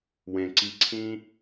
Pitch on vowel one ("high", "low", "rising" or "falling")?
low